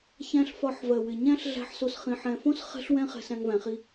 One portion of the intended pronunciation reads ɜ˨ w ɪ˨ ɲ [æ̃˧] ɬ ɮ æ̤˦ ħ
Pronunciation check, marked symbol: incorrect: æ̃˦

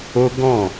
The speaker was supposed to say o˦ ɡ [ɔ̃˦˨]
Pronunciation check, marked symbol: correct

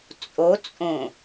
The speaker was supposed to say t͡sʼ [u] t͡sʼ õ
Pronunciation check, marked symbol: incorrect: o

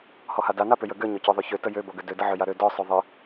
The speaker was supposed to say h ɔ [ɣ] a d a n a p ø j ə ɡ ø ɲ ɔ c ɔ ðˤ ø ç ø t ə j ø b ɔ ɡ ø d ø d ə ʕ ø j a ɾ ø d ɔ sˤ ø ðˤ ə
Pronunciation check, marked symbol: incorrect: h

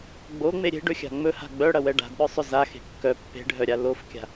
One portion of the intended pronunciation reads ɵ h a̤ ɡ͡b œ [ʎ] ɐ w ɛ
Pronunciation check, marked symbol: incorrect: ɽ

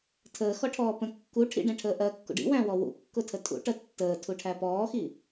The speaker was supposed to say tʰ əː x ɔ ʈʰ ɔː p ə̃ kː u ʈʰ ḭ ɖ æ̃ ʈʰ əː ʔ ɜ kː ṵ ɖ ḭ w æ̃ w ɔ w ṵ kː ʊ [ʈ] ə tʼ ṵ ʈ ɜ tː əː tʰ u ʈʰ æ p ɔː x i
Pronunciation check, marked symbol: incorrect: tʰ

